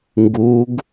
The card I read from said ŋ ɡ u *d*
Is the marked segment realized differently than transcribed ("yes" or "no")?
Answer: yes